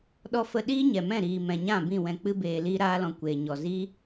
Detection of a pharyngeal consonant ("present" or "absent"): absent